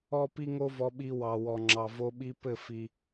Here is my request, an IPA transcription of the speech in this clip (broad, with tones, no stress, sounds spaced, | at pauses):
ɔ˦ p i˦ ŋ o˦ v ɔ˧ ɓ i˧ w ɑ˨ w ɔ˨ ŋ͡ǁ ɑ˨ v o˧ ɓ i˧ p ɘ˦˨ f i˧